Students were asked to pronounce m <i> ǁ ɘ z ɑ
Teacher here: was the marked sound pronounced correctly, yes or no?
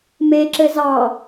no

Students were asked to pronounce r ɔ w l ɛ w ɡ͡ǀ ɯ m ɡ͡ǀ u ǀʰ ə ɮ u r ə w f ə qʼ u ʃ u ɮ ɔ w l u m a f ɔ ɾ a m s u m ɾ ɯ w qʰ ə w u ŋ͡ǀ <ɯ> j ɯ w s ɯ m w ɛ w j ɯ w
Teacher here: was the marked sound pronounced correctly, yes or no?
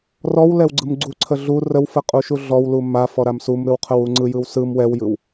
yes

